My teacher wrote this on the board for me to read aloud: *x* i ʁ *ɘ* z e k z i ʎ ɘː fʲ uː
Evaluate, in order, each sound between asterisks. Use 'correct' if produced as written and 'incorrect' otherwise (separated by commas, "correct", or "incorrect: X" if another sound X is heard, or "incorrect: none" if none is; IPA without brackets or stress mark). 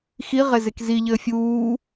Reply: correct, incorrect: e